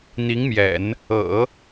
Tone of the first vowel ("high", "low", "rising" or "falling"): rising